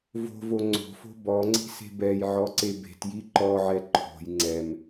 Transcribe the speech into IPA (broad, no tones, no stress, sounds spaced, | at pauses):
v o̤ v o ŋ͡ǀ o̤ f o̤ b ɔ ŋ͡ǀ i̤ s e̤ b ɛ j ʕ ɔ ǀ e b e̤ t j i ǃ ɔ ʕ ɛ ǃʰ o̤ j ŋ͡ǀ ɛ m